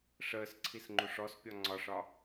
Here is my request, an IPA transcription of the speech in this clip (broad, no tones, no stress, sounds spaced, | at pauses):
ʂ əː s ǀʰ i s ŋ͡ǃ u ʂ ɔ s pʲ ɒ ŋ͡ǀ ɒ ʂ ɒ